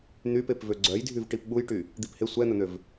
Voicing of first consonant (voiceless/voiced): voiced